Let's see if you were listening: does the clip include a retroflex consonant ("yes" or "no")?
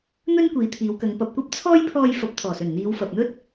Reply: no